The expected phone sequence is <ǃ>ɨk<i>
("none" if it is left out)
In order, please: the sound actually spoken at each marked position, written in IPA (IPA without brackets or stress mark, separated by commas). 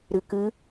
ɾ, ɨ